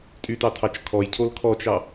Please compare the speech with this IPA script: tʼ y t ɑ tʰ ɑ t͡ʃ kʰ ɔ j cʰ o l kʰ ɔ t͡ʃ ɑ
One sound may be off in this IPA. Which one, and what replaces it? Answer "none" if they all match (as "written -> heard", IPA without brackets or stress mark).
none